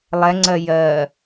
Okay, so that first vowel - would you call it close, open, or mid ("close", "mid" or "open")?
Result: mid